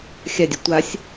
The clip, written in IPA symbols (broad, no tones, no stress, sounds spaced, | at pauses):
xʲ a dʲ œ tʷ a sʲ